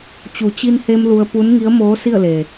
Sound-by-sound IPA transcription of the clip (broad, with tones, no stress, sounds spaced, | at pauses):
t͡ɕ u˩˧ t͡ɕ i˧ n h e˧ m l u˧ ə̯ p u˧˥ n ŋ i˧˥ ə̯ m oː˧˥ s i˥˨ ə̯ l e˩